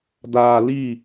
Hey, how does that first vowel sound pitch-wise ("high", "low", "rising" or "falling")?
low